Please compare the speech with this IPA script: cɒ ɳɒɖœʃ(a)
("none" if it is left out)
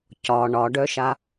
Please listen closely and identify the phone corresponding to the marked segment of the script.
a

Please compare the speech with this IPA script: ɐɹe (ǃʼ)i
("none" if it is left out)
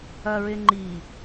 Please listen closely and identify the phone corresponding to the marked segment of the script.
ŋ͡ǃ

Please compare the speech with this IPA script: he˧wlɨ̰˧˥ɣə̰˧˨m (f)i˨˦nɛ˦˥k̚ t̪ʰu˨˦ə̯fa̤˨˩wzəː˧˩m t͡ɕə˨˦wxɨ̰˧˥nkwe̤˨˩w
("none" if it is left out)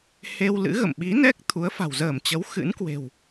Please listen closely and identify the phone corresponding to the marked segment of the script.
ɓ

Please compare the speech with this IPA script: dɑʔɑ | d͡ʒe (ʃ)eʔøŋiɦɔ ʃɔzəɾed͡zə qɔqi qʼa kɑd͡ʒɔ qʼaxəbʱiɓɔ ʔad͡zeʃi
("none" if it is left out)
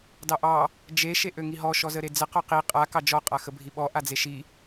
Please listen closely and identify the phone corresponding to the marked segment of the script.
ʃ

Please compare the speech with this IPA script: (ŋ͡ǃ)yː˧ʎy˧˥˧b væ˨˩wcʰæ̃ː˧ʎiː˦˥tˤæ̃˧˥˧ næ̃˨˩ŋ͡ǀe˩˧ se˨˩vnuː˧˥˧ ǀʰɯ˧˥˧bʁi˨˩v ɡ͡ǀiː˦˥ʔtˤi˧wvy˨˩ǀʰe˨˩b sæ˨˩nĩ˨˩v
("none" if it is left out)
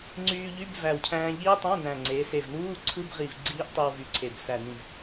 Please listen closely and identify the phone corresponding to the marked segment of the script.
ŋ͡ǀ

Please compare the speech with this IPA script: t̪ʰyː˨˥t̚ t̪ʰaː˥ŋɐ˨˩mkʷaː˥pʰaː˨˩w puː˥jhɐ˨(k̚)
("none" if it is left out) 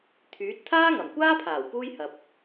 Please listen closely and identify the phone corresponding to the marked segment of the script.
p̚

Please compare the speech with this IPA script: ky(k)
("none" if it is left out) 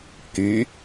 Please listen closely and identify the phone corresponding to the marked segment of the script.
none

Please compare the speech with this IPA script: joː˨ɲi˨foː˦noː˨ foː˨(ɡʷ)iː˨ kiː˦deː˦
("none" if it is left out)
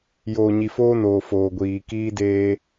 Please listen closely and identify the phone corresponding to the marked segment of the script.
ɡʷ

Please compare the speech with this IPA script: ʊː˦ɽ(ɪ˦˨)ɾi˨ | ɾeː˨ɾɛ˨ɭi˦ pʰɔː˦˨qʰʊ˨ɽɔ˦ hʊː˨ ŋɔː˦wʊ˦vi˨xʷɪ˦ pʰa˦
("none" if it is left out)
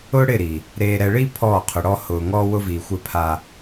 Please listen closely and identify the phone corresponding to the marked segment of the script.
ɪ˦˨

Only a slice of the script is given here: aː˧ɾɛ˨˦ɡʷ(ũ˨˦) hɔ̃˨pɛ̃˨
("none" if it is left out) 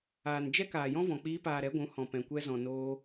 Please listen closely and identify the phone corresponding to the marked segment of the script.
ũ˨˦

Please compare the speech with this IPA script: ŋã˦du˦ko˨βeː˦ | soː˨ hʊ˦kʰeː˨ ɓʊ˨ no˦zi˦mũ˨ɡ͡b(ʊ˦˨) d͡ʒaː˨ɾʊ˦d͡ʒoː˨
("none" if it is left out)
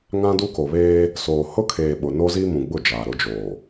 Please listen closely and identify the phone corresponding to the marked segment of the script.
ʊ˦˨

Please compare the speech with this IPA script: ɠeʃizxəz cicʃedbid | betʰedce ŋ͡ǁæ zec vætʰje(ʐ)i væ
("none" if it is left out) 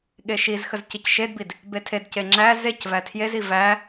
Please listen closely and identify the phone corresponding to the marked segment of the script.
z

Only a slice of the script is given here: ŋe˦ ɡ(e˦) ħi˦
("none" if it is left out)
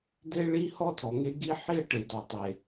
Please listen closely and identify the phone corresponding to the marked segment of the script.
i˦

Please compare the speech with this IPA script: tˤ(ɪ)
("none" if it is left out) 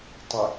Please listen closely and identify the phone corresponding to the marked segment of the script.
ɪ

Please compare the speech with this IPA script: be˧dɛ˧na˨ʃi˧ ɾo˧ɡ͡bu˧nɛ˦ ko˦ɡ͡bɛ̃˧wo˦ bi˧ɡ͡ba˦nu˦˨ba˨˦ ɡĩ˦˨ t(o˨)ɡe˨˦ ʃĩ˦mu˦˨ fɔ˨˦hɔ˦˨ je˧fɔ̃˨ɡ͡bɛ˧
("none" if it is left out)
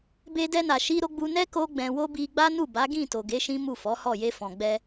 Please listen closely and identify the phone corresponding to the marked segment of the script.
o˨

